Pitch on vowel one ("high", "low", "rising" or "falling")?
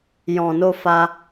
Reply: low